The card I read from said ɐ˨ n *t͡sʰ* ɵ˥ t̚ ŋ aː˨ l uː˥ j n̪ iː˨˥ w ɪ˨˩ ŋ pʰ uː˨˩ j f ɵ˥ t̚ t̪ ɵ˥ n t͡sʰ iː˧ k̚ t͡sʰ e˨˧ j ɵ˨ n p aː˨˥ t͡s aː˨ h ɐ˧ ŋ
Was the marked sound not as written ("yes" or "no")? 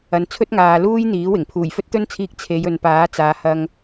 no